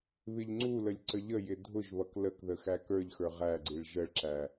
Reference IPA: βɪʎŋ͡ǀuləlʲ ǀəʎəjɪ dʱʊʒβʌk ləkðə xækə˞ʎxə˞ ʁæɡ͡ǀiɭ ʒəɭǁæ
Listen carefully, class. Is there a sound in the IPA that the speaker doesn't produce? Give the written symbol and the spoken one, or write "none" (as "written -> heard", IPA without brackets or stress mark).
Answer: none